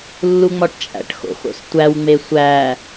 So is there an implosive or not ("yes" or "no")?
no